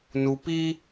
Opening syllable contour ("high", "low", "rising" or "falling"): low